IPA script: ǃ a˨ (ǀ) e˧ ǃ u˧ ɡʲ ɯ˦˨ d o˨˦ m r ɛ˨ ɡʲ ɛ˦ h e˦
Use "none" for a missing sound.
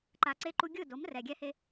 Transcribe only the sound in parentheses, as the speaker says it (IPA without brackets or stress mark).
ǀ